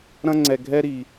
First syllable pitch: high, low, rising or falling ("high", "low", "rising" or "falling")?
high